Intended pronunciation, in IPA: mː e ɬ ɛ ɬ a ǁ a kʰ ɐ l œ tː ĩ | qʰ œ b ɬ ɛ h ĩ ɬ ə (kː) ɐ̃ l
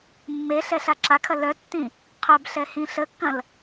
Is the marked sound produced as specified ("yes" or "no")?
yes